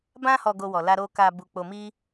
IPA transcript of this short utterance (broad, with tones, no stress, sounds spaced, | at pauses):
b ã˧ h ɔ˨ ɡ o˧ w ɔ˨ l a˧ ɾ o˨ k a˨ b u˨ k͡p o˨ m i˧